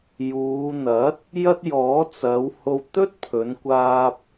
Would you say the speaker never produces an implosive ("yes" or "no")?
yes